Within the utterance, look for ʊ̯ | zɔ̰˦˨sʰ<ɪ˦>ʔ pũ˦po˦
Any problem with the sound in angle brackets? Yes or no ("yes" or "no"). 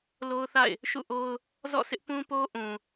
no